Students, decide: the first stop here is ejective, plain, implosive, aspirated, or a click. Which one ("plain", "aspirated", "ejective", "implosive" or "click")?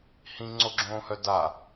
click